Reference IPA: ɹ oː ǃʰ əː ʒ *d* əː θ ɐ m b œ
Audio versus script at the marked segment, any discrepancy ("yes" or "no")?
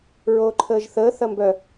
yes